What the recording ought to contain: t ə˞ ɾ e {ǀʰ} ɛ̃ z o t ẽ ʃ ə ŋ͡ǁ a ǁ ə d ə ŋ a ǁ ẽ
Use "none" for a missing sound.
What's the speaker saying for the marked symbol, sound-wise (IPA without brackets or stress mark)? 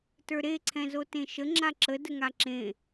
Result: ǀʰ